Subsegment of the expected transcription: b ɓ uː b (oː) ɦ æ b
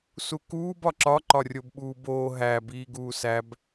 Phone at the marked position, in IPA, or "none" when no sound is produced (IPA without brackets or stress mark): oː